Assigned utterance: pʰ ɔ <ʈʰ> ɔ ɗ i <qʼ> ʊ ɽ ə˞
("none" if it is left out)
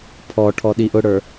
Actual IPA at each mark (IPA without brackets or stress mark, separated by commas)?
ʈʰ, ʔ